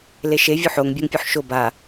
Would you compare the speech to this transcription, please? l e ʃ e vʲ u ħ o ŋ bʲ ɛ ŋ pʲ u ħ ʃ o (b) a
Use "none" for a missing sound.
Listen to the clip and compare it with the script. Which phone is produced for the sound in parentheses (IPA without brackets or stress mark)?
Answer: b